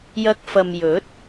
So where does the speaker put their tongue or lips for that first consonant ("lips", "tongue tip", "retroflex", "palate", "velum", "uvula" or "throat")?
palate